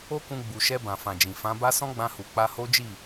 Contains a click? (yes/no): no